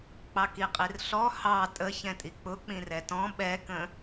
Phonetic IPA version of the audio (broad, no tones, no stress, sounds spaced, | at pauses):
k͡p ɑ k i qʼ i r ɬ ɔ h ɑ tʼ ə ç ɛ̃ tʼ i k͡p ʊ k͡p ĩ r ɛ t ɔ̃ ɓ ɛ k ə̃